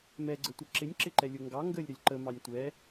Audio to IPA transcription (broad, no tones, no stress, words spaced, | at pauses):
mɛɡ͡ǀətʷə ǁɪnʲǁɪǃɛlʲʊ ŋɡɑ ŋɡəlʲɾəlʲ ǃəmɑnʲ tʷɛ